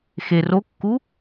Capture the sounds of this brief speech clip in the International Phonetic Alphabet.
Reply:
x e r o kː u

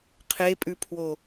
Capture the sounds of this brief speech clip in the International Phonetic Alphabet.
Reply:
qʰ e pʼ ʉ pʰ w o

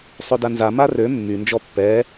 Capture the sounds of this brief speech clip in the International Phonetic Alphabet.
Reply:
sˤ ø d a n z a m a r ø mː y n d͡ʒ ɔ pː ɛ

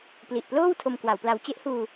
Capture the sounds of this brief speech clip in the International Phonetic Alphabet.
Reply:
p l i˨˩ ʔ p l oː˥˩ w tʰ o˧ m k w a˩˦ w p l a˧ w t͡ɕ e˦˥ ʔ h uː˧

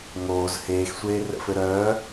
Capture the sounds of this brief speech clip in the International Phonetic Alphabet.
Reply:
ŋ oː z h eː x sʷ eː r ə̰ f ɘ ɾ œː

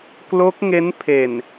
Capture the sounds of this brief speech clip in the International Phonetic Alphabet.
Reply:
k l o˦˥ k̚ ŋ e˦˥ n pʰ e˨˩ n

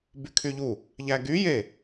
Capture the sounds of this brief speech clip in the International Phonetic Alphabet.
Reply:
b y kʰ y ʎ u | ʎ æ ɡ y j e

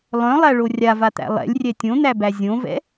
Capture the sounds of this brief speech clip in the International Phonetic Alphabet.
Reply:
lˠ œ̃ lˠ æ ɭ o rʲ a v a t̪ æ̰ lˠ ɛ̰ lʲ rʲ ɛ tʲ õ n̪ æ b æ zʲ õ v ɛ̰

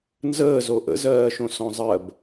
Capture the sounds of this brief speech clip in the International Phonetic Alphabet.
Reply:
n z əː z o ʔ ə̰ z ɜː ʃ õ s ɔ̃ zˤ ɜ b

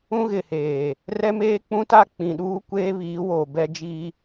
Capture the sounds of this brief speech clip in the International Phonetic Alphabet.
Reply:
ũ˦ ɣ ɪ˨ h eː˨ | r ɛ˦ m eː˦ k͡p ũ˦ t a˦ k͡p ĩ˨ ɗ uː˦ kʷ eː˦ β iː˨˦ w oː˨ b ɛ˦ d͡ʒ iː˦

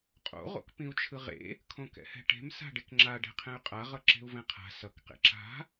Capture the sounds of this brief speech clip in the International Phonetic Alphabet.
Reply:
qʼ o̰ ʁ o̰ k p ĩ u̯ t͡ʃʰ ɯ ʁ ḛ | kʰ õ k ɛ̰ h ɛ̤ ʈ e̤ m s a̤ ɖ e k ŋ͡ǁ a ɖ ɛ̤ qʰ ɛ̃ y̯ qʼ a ʁ ʌ ǁ e̤ u̯ v ɛ̃ qʰ a̤ s ʌ k q ḛ ǁ a̤

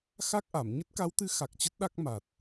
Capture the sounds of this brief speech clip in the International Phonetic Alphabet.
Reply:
x a˦˥ k̚ ʔ a˧˩ m ɲ ə˦˥ t̚ k a˨˦ w t̪ ɨ˨˦ x a˨˩ k̚ t͡ɕ ə˦˥ t̚ ɗ a˦˥ k̚ m a˨˩ t̚

